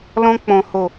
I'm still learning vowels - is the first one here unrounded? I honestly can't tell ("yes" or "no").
no